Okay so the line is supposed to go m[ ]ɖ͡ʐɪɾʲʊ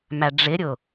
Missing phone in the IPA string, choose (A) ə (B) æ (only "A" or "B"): B